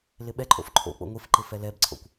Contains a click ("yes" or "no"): yes